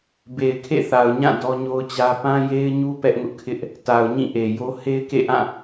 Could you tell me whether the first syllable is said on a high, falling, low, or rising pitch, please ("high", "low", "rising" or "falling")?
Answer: low